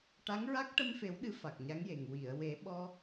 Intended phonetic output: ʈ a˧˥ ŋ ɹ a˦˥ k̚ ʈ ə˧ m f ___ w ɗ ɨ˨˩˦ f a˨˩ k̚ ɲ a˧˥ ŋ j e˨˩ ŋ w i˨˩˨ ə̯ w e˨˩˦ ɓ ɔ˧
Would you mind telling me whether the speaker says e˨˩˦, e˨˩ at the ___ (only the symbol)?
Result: e˨˩˦